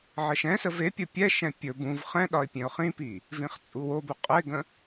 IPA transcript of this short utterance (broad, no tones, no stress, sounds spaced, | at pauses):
ʕ ə ʃ ɛ̃ s ə v e pʲ ə pʲ ɛ ʃ ɛ̃ pʲ ɵ b ũ v χ ɛ̃ ɗ ɒ ɪ̯ pʲ ẽ ʊ̯ χ ĩ p i | v ĩ χ t͡sʼ u w o b u qʼ ə ɪ̯ ɡ ə̃